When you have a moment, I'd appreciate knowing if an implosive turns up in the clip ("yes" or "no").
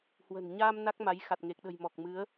yes